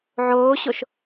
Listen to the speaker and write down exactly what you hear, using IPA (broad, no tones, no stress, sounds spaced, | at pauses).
ʕ oː ɕ o ʃ